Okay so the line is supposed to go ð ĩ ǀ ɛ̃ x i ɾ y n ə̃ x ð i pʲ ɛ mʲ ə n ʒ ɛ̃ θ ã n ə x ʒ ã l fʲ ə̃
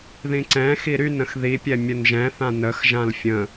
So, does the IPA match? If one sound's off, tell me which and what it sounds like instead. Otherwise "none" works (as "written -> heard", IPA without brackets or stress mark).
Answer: none